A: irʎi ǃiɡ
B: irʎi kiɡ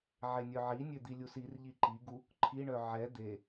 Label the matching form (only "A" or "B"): A